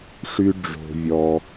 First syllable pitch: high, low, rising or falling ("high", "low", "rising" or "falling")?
high